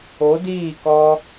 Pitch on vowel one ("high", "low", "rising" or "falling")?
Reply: rising